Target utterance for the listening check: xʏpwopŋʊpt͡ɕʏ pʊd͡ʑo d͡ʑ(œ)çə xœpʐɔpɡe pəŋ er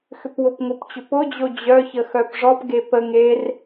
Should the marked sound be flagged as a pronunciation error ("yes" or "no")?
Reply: no